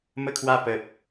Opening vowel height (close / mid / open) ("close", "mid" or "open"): mid